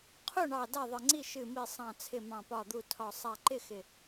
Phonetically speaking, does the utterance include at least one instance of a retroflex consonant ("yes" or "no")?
yes